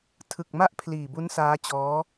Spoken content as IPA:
tʰ ɯ˨˩ k̚ m a˥˩ ʔ pʰ l iː˨˩ b u˦˥ n s aː˦˥ t͡ɕ ɔː˦˥

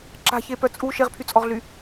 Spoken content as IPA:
ǁ a̤ ç e p œ t͡sʼ u ʃ e ʁ pʰ y t͡sʼ ɔ ʁ ɮ y

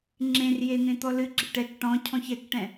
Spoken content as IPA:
ŋ͡ǁ ẽ r j e n̪ ẽ t̪ ɔ l ɨ ɡ͡ǁ ɪ ʈ ɛ k ʈ ɔ̃ cʰ ɔ̃ ç ɛ k ʈ ɛ̃

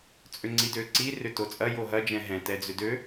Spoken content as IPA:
t͡sʼ ʏ ŋ͡ǀ i d ø ǀ i r ʏ t o t͡sʼ ɐ j o ɦ ɐ d͡ʒ ɛ̃ ɦ ɛ̃ t ɛ d͡z ʏ d ø

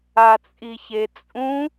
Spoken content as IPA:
a t͡sʼ i ç e t͡sʼ ũ

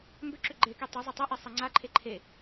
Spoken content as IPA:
m b ʏ ǁ ʏ ɡ͡ǃ e k i tˤ ʏ zˤ ɪ tˤ ɛ ʔ i sˤ ɛ ŋ͡ǀ a ǃʰ e ǃʰ e

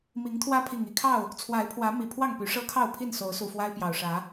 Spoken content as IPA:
m i˨˦ ŋ t̪ʰ w ä˦ pʰ i˨˩ ŋ i˥˨ kʰ ɑ˥˨ ʊ̯ | t͡sʰ w a˨˦ ɪ̯ pʰ w ä˨˦ m i˨˩ pʰ w ɑ˥˨ ŋ p y˨˦ ʂ ɤ˦ kʰ ɑ˥˨ ʊ̯ pʰ i˥˨ n s o˨˦ ʊ̯ s u˨˩ f w a˦ ɪ̯ p j ɑ˨˩ ʊ̯ ʂ ä˨˦

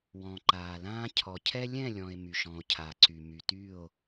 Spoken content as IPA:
w ɔ̃˨ ǃ aː˨ l ãː˦ cʰ ɔ˨ cʰ ɛ˦ lʲ ɛ̃˦˨ lʲ ɔ̃˨ e̯ m y˨ ʃ ɔ̃˨ o̯ cʰ a˨ ǀ y˨ m y˨ t y˦˨ o̯

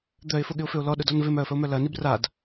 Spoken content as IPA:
d̪ œ ɪ̯ f ʊ ɠ ɪ ʊ̯ f ʏ ʊ̯ l ɔ ɗ ʊ d ɔ n v ɪ m œ ə̯ f ə ʊ̯ m œ l ɐ n i b r a d

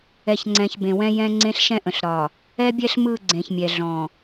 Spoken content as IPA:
ɛ˨ ç ŋ͡ǀ ɛ̃˨ ç b ẽ˨ w ɛ̃˦ j ɛ̃˦ ŋ͡ǀ ẽ˦ ɬ ʃ ɛ̃˦ ʔ ə̃˨ ɬ ɾ ɒ˨ | ɛ˦ bʲ ɛ˦ ɬ m ɯ˦˨ ɡ͡ǀ ẽ˨ ç mʲ ɛ˨ ɮ ɔ̃˨

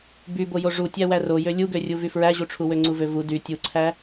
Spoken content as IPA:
b y b o j o ʐ u tʲ æ w æ r o j ø lʲ u ɡ ø rʲ u v y f ɹ æ ʑ u ʈ͡ʂʰ u w ø ŋ͡ǀ u v ø v u d y tʲ u ǀʰ æ

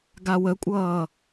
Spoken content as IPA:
ɡ a w ə kʷʼ ʌː

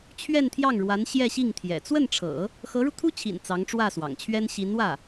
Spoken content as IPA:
t͡ɕʰ ɥ ɛ˥˧ n t̪ʰ j ɑ˥˩ ŋ ɻ w a˧˥ n ɕ j ɛ˥˧ ɕ i˥˩ ŋ t̪ʰ j ɛ̰˨˩ t͡s w ə˥˩ n ʈ͡ʂʰ ɤ̰˨˩˦ | x ɤ˧˥ ɻ u˧ t̪ʰ u˥ t͡ɕʰ ḭ˨˩ n t͡s ɑ˧˥ ŋ ʈ͡ʂ w ä˥˩ s w ɑ̰˨˩ ŋ t͡ɕʰ ɥ ɛ˥ n ɕ i˧˥ n w ä˥˩

